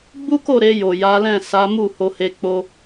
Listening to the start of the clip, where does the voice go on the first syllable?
high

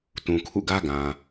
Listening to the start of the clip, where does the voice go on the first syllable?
low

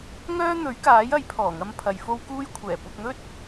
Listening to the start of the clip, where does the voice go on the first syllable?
high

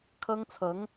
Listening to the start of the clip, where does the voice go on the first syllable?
high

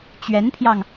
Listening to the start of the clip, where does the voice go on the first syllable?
rising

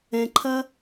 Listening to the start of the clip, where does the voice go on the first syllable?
low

